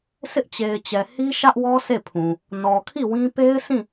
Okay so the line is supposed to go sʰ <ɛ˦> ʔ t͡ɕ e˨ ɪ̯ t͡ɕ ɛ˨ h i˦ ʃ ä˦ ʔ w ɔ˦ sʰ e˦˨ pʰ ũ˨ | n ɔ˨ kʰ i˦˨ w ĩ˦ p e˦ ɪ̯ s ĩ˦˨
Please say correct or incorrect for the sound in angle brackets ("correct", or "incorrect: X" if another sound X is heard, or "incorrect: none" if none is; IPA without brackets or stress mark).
incorrect: ɪ˦